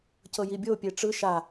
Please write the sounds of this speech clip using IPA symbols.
cɤjibʲo pʲeʈ͡ʂɯ ʃa

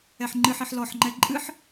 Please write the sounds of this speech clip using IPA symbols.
ɛħŋ͡ǃɨħiħ lɔħŋ͡ǃɛ ǃʼɨħ

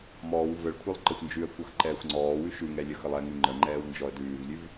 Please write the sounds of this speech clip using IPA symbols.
mɔːw vəɭkʷʰəlˠ ǃəxʷnd͡ʒʉə̯kʷʌx ǃɛːxʷŋ͡ǀɔːwʉ ʃʉŋɛ lʲəxəlˠɛŋʉ ŋ͡ǃəŋ͡ǃɛːw nd͡ʒɔə̯dʉːvlʲʉv

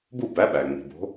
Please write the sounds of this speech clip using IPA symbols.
bu˥˨bæ˨˥ɓæ˩ ŋ͡mi̤˩bo̤˨˥

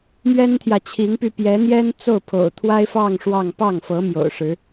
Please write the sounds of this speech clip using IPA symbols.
mɥɛ˥nt̪ʰjä˨t͡ɕʰi˧˥ŋpy˧ pjɛ˧˥n̪jɛ˥n t͡so˥˩ʊ̯pʰo̰˨˩ʊ̯ t̪ʰwa˥ɪ̯fɑ˥˧ŋ ʂwɑ˥˧ŋ pɑ˥˩ŋfɤ˧˥ mjo̰˨˩ʊ̯ʂɻ̩˧˥

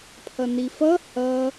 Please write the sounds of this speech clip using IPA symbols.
pʰʌnifʌ hʌ

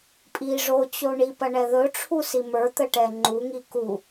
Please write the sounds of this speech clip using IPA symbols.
pʼi ʐot͡ɕo ɳipɐɳɛ ðɵʈ͡ʂʰusi mə˞t̪əʈɛ ŋ͡ǃuŋi ku

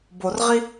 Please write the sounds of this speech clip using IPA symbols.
borʁi

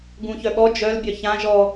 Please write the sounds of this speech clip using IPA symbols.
ɡũçœɓɔ d͡ʒœl bʲœçã ʒɔ

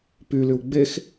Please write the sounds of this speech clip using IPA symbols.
pylyw ɡ͡bex

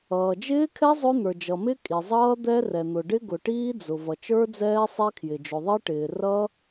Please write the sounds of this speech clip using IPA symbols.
ʌː˩d͡ʒɪː˦˥kʰɛ˦˥ zˤʊ˦˥ n̪ə˞˩d͡ʒʌ˩mɪ˦˥ kʼi˩zˤʌː˦˥ d̪ɛ˦˥rɛ˩n̪ʊ˩ ɖɪ˦˥ɡʊ˩ʈiː˦˥d͡zʊ˩ vʌ˩t͡ʃə˞˦˥d͡zɛː˦˥ sˤɛ˦˥kʰjɪ˩ d͡ʒʊ˩ðˤi˦˥ʈɪː˩ rʌ˦˥

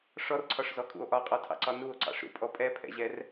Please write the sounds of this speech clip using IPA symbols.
ʂɔrǀʰɒʂzɔkʼṵo̯ ʔɒqʼɔtʰɑ̰ǀɒ nuo̯ǀɑ̰ʂɾṵpʼɔ pʼɛpʰɛ̰ʑɛr

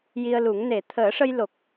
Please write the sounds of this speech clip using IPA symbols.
ji˧ə̯lu˨˩˦ŋ ne˨˩˨t̪ʰəː˨˩˦ʂə˧j lo˨˩k̚

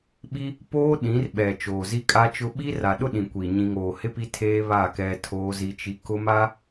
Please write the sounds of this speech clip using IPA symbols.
ɓi˦ | poː˦ɗĩ˨˦rɓɛ˨ t͡ʃoː˨zi˦kʼa˦t͡ʃʊ˦ ɓi˦ra˨ɗʊ˦ ɗĩ˨kʷi˨ ɲĩ˨ŋoː˨hɪ˦ pi˦tʰeː˦ βa˦˨ kɛ˦tʰoː˦zi˦t͡ʃi˦ kʊ˦ma˦

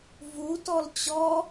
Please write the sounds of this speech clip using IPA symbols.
vutɔl t͡ɕɔ

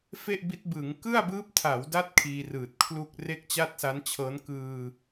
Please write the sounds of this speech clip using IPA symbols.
fe˥˩ʔbi˦˥t̚bɯː˩˦ŋ kɯ˥˩a̯bɯː˦˥p̚tʰa˩˦wda˦˥t̚ kʰiː˧rɯː˨˩t̚kʰlu˥˩k̚ re˥˩k̚t͡ɕa˥˩t̚sa˦˥nt͡ɕʰɤː˦˥n kɯː˧

